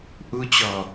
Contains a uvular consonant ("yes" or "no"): no